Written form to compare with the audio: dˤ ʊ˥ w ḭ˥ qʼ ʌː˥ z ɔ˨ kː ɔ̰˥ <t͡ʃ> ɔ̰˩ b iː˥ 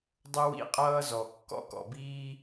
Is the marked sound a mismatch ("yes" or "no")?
yes